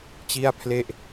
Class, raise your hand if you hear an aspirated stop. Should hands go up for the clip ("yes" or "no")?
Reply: yes